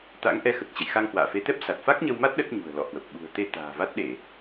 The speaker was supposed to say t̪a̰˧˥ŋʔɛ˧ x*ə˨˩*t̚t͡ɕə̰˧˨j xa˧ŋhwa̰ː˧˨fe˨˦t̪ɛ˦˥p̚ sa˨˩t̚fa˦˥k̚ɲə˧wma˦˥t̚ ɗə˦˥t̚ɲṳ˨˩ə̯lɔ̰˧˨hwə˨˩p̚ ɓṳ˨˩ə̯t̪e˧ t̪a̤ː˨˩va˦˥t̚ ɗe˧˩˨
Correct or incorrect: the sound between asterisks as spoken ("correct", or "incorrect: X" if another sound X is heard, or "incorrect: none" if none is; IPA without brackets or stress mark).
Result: correct